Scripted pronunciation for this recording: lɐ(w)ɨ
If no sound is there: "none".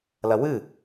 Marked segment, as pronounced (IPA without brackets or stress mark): w